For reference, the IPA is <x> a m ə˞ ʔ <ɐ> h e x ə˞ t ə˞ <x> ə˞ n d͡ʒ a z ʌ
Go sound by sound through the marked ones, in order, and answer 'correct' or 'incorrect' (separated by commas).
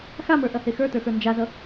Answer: correct, correct, correct